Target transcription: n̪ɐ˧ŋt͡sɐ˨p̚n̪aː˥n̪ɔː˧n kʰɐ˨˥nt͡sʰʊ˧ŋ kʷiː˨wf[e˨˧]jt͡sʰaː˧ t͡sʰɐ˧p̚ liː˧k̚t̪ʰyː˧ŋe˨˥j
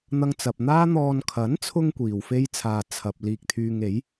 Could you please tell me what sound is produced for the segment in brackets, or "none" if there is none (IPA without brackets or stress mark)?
e˥